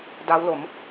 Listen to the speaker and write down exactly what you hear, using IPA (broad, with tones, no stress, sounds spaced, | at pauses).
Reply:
d a˦˥ w l o˩˦ m